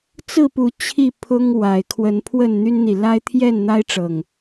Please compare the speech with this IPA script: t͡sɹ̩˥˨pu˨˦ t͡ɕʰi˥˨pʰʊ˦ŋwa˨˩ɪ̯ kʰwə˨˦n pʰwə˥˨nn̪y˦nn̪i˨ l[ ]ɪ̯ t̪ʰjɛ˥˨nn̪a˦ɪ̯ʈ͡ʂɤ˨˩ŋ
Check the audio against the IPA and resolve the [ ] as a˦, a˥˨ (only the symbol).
a˦